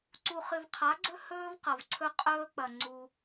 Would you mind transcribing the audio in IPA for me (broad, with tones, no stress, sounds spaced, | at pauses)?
ǀ u˨ χ ɨ˨ v qʰ a˨˦ ɡ͡ǀ ɵ˦ h ɵː˦ v q ɐ˨ v ǀʰ ɵ˦ qʼ ɵː˦ k͡p ɐ˨ ŋ͡ǀ u˦